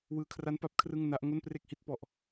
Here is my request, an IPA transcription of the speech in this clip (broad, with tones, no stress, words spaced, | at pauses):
wɯː˧kʰra˦˥n pa˥˩p̚kʰrɯ˥˩ŋ na˦˥ʔ ŋo˥˩npre˥˩k̚hi˦˥t̚pɔ˨˩ʔ